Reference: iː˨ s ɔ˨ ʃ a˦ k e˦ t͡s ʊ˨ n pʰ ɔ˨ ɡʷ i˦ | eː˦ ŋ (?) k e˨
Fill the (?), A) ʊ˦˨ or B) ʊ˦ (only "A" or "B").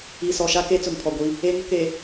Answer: B